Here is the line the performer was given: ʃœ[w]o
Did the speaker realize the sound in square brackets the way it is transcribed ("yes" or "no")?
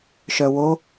yes